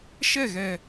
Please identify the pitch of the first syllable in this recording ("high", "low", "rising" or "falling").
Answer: falling